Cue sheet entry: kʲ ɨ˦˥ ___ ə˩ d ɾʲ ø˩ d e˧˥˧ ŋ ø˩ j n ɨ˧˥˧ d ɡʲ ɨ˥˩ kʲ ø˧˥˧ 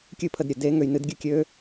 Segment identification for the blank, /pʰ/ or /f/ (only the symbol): pʰ